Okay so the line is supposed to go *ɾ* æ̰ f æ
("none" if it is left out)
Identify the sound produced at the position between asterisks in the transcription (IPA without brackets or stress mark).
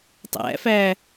tˤ